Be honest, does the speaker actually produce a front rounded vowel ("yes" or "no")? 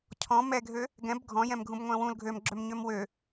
yes